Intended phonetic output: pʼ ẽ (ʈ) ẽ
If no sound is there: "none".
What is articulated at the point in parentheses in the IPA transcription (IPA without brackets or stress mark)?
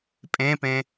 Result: p